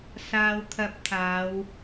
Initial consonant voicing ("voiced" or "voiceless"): voiceless